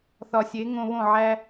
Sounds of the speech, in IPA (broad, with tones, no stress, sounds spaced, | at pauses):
θ ɒ˨ sʲ e˨˦ ŋ õ˧ β õ˦˨ ʕ æ˧